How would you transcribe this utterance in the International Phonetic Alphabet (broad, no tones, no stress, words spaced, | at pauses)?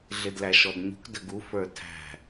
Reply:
ɮɪdlæʃɔdɲṳk dəɡu fə˞tʰæ̤